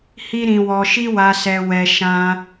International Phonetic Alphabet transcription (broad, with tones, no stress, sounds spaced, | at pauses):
h i˦ ɾ ĩ˧ w ɔ˧ ʃ i˦ w a˧ s ɛ˧ w ɛ˧ ʃ ã˦